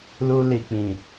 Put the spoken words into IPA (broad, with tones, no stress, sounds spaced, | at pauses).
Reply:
l u˧ l i˨ k͡p ĩ˨